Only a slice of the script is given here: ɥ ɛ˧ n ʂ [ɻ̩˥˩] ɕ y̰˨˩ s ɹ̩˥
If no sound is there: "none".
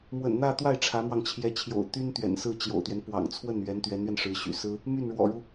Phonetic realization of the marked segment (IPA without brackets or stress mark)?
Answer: ɻ̩˧˥